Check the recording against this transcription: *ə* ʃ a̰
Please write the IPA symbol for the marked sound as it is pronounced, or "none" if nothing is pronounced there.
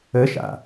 ə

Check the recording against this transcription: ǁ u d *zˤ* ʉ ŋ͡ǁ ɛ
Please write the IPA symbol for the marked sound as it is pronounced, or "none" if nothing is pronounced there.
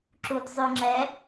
zˤ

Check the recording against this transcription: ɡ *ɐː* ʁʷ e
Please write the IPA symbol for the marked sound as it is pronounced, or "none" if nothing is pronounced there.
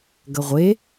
ɐ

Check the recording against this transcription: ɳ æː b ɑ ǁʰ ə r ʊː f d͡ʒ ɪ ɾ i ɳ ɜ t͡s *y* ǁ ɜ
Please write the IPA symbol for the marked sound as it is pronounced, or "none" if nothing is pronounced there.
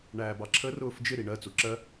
u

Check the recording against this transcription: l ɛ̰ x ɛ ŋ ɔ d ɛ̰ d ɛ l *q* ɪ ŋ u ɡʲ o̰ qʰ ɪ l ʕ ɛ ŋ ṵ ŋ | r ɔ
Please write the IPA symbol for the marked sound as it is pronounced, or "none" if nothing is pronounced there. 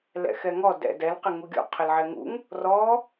q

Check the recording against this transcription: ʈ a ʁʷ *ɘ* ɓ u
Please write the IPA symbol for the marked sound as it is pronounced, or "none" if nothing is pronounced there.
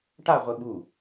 ɘ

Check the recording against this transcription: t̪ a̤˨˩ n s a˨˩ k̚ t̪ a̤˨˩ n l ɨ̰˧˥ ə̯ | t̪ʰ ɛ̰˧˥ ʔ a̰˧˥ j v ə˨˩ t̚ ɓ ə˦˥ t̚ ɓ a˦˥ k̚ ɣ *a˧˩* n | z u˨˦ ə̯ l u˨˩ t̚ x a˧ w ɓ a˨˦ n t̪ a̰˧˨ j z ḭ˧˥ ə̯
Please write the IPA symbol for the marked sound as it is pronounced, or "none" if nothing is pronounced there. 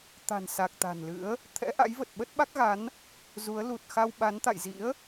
a˨˦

